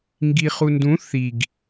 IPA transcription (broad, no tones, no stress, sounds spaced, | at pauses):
ŋ ɡ i χ u n d ũ θ i ɡ